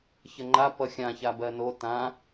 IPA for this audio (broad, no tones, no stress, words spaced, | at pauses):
çəŋ͡ǃa pʌxʲã çabɜno tã